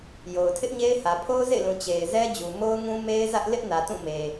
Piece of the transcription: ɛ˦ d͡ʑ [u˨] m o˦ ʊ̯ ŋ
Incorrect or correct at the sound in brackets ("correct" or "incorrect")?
correct